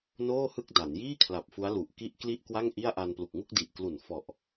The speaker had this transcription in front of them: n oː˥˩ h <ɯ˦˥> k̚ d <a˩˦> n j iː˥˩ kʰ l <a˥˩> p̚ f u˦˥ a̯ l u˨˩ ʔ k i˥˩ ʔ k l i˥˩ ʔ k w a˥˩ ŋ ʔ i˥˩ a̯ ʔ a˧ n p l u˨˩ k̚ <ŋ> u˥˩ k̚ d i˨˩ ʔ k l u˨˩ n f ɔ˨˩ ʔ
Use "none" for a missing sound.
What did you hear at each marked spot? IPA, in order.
ɯ˥˩, a˩˦, a˨˩, ŋ

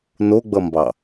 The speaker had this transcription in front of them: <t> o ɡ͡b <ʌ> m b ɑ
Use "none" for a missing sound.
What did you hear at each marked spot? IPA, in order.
n, ʌ

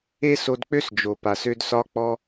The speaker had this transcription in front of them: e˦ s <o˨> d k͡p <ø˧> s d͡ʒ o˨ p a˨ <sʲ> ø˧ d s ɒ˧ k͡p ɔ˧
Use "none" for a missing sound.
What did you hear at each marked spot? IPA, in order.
o˧, ø˦, s

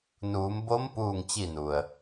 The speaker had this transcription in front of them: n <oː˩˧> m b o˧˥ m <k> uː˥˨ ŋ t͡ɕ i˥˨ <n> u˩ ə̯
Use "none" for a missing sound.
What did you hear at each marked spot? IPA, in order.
uː˩˧, p, n

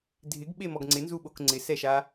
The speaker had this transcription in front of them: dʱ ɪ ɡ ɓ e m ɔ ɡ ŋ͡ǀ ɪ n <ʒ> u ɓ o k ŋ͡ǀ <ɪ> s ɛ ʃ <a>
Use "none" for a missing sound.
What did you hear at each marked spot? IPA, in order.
z, ɪ, a

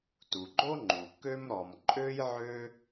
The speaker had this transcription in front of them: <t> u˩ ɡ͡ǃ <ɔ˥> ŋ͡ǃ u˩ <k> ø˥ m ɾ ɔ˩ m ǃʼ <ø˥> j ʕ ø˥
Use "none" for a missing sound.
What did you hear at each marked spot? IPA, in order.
t, o˥, k, ø˥

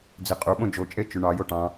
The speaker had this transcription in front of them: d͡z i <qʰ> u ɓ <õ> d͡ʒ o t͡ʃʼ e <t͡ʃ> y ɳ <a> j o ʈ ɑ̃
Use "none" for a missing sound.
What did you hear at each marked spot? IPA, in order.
qʼ, õ, t͡ʃ, ɑ

